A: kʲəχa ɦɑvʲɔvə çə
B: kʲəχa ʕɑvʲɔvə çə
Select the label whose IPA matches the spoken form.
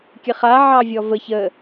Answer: B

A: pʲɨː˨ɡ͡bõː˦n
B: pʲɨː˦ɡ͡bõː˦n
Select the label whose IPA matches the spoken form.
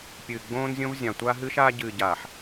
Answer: A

